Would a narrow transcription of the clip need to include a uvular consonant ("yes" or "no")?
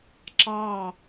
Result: no